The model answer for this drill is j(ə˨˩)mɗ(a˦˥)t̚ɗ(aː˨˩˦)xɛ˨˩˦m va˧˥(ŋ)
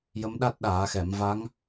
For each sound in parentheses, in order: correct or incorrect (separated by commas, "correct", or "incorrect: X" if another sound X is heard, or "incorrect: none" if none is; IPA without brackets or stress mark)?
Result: incorrect: ə˧˥, correct, correct, correct